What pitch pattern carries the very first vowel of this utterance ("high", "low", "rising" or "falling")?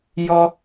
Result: high